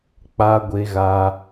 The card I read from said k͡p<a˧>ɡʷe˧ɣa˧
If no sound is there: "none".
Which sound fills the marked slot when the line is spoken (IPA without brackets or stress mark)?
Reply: a˧